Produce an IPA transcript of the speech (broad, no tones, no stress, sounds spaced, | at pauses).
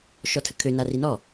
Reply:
ʃ ɔ tʰ ə kʰ ø n a r i n ɔ